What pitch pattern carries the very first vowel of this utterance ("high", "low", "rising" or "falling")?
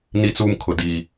high